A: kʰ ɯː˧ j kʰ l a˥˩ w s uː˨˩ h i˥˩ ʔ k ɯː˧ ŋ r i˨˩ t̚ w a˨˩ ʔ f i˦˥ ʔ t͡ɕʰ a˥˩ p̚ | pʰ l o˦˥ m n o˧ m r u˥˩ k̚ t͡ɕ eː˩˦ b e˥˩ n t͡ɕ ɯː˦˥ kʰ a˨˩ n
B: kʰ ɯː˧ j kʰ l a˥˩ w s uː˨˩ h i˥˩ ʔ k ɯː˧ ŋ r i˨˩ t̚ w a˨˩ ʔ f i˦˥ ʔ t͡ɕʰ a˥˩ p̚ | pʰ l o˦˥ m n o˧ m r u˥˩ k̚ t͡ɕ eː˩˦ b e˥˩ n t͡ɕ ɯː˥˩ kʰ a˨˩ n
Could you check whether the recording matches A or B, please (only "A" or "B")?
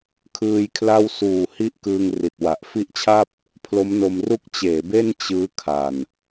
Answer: A